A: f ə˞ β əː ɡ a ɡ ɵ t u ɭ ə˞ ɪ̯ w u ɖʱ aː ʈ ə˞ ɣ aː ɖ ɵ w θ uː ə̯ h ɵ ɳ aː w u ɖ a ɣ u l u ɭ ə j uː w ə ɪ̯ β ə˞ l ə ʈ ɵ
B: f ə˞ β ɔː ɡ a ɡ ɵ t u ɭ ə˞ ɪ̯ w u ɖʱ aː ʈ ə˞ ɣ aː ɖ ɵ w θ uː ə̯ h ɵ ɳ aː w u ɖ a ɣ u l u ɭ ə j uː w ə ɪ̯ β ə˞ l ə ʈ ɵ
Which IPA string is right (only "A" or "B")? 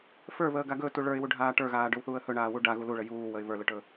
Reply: A